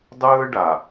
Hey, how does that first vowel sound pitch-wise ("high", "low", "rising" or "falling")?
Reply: high